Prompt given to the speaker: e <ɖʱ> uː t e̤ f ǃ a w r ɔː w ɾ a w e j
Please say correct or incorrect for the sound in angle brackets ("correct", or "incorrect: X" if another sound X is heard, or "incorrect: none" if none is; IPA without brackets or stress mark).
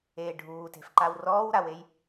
correct